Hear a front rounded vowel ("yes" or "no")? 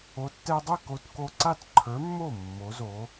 no